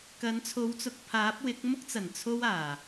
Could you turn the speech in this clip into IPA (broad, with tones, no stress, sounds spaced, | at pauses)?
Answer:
k ɐ˨˥ n t͡sʰ o˨˥ w t͡s ʊ˨ k̚ pʰ aː˨˥ p̚ w ɪ˨˥ k̚ m ʊ˥ k̚ t͡s ɐ˨˩ n t͡sʰ o˥ w aː˨˩